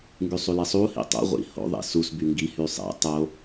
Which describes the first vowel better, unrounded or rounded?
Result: rounded